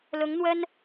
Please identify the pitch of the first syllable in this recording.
rising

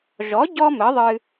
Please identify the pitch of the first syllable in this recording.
rising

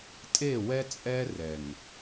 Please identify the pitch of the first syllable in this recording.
falling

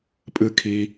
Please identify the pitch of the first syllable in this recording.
high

